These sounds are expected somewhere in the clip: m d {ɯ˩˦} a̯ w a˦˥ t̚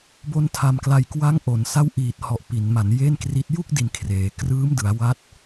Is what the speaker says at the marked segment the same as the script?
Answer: yes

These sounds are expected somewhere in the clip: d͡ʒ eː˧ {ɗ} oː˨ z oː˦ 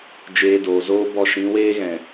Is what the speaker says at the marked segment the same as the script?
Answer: no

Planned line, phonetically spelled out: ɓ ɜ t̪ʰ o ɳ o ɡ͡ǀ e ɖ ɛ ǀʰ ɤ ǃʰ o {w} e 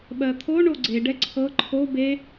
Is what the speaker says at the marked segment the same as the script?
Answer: no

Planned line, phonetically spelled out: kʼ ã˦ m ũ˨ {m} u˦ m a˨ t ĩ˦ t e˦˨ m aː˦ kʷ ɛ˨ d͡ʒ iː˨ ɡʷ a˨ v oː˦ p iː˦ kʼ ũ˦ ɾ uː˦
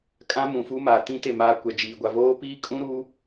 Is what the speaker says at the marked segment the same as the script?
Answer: no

